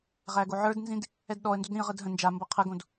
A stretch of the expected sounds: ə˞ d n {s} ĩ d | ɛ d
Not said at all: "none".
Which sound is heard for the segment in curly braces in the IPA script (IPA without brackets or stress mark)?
z